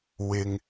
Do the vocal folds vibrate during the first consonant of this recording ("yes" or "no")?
yes